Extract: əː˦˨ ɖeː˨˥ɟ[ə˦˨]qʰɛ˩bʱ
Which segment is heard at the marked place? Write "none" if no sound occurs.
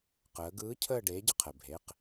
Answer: ə˦˨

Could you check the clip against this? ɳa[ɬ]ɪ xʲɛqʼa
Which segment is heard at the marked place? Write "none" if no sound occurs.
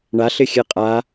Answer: ɬ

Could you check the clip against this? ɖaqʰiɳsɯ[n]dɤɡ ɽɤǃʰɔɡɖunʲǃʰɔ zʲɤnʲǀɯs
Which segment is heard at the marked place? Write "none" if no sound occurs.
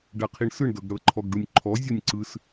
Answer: ɳ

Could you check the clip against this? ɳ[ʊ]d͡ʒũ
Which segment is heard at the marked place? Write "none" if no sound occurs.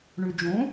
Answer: ʉ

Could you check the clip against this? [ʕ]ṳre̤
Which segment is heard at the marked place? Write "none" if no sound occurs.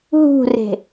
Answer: ɦ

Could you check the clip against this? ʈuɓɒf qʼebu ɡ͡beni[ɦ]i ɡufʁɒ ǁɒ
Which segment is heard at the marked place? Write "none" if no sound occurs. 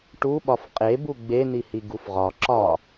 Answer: h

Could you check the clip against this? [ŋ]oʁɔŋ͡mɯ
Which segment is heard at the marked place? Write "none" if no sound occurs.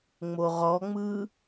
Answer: ŋ͡m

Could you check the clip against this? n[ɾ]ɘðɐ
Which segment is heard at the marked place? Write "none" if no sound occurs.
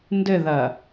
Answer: d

